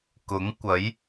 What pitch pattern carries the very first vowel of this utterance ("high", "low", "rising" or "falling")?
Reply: rising